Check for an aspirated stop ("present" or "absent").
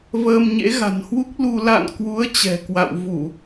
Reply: absent